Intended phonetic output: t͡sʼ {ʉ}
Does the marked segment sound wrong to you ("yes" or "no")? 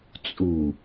yes